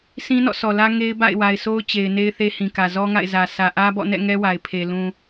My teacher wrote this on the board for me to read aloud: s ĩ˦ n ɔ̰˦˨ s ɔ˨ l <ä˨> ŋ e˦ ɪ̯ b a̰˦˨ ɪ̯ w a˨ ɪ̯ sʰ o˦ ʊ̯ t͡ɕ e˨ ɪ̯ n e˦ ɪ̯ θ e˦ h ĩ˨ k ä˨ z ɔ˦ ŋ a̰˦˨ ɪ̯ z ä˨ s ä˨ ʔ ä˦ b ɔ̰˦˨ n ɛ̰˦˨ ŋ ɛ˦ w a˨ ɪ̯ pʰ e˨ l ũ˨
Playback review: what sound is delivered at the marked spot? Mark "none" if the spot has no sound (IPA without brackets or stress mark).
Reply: ä˦